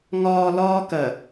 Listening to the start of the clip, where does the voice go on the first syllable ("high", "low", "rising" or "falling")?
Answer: low